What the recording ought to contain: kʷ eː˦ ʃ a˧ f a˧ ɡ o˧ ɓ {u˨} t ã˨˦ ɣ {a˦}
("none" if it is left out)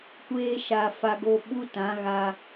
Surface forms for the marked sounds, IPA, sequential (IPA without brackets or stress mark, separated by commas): u˦, a˧